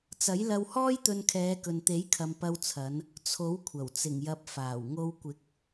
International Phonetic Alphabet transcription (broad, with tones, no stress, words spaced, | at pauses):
t͡sɐ˨˥jlɐ˧w hɔː˥jt̪ɵ˧n kʰɛː˨˧kɵ˨nt̪e˨˥jkʰɐ˨m pɐ˧wt͡sʰɐ˨˧n | t͡sʰo˨˥wkʷʰɐ˨˩w t͡sɪ˨˩ŋjɐ˨p̚ faː˨˩wŋo˧w kʷɪ˨˥k̚